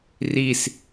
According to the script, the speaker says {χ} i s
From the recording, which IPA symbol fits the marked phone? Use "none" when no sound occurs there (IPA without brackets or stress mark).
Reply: r